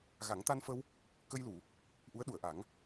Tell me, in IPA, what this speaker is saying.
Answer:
ɣ a˨˩˦ ŋ t̪ a˧ n f ə˧ w | k ə˧ j l u˨˩˨ | ʔ u˧˥ ə̯ ɗ u˨˩˨ ə̯ ʔ a˨˩˦ ŋ

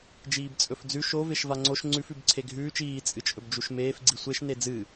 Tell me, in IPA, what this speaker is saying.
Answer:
d͡ʒ iː b t͡sʼ ɵ f d͡z ʉ ʃ o v e ʃ v a ŋ͡ǀ o ʃ ŋ͡ǀ ʉ f ʉ b ǀʰ e ɡʱ ʉː t͡ʃ iː t͡sʼ ɨ t͡ʃʼ ɵ b d͡ʒ u ʃ m eː f ɡ͡ǀ i sʷ e ʃ n e d͡z ɨ

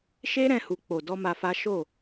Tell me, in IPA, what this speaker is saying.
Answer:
ʃ e˦ ɾ ɛ̃˧ h u˨ k͡p o˨ d ɔ˧ m a˧ f a˦ ʃ o˦˨

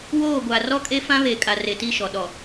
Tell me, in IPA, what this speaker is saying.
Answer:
w oː˦˨ ɡʷ a˨ r ɔ˦ kʼ e˦ f ã˦ β e˨ kʼ a˨ r e˨ t i˦˨ ʃ ɔ˨ ɗ ɔ˨

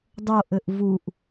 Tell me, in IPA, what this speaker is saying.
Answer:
dˤ o ʔ ɘ ʔ v u ʔ

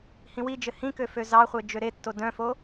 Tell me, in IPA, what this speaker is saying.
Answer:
h ĩ w i d͡ʒ ɘ h ĩ k ø f ø z ɑ χʷ e d͡ʒ ø ɾ e tː o d œ̃ f o

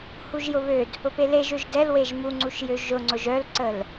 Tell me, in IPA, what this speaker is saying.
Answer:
h u ʒ j ʊ β ø d | ʊ p e l e ʒ ø ʒ d ɛ l w e ʒ m u ŋ͡ǀ u ʃ j ø ʒ ʊ ŋ͡ǀ ʊ ʒ œ l ǀ ə l

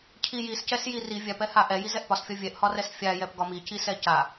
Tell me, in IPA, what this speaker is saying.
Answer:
cʰ i j i s c ɛ s j i r i vʲ a p ɛ h a ʔ ɛ j i z ɛ ʔ p ɒ s fʲ ɒ vʲ ɛ ʔ h ɒ r ɛ s fʲ a j ɛ p ɡ ɒ m i c i s ɛ c a

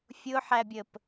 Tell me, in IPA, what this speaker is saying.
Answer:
fʲ ʊ ħ æ bʲ ə p

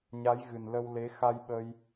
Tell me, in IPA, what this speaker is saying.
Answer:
ɲ a˨˦ j ɣ ɨ˨˩ n l ə˧ w l e˨˦ x a˧ j ɓ ə˧ j

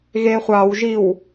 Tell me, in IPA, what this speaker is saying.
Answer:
ɣ e χʷ ɑ w ʒ i w

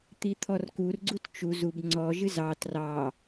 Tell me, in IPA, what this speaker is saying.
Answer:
t̪ i t̪ʰ ɔ r k u r ɡ͡ǀ u t t͡ʃ u z u b ŋ͡ǀ ɔ ʒ ɨ z ɑ t r ɑ

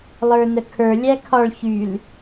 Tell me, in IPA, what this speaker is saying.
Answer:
lˠ ə˞ n ə kʰ ə˞ lʲ æ kʰ ɒ ɭ ç y l

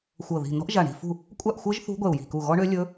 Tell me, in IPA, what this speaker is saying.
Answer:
xʷ ɤ˧˩ ð i̤˧˩ n ɔ̤˦˥ ʔ ʒ a˧˩ ɳ i̤˧˩ f ṳ˥˩ | kʷʼ a˥˩ ʔ xʷ ɤ˦˥ ʒ θ ṳ˦˥ ɡʷ ɛ˧˩ u̯ j i̤˧˩ k u˧˩ ɣ ɔ˦˥ ɳ ø˦˥ lʲ ɵ˦˥

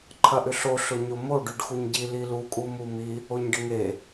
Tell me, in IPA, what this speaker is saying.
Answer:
ǃʰ ɐ ʔ ʏ ɬ o ɬ ʊ ɲ o m o ɖ y ɖ x u ɲ ɟ i l i l u kʼ u m u m i | o ɲ ɖ ɪ ŋ e

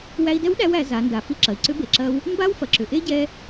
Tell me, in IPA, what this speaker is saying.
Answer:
w æ˧ i̯ d ɛ˧˥ w ɗ æ˧ w æ˩˧ z a˩˧ n d a˩˧ f i˧ ǁ ɐ˩ i̯ ǀ ʏ˧˥ b e˩ ǁ ɐ˧ w | m b a˥ w f ɐ˩ ǁ ʏ˩ ʔ e˥ ɟ ɛ˧

